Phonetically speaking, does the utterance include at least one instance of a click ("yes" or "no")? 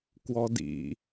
no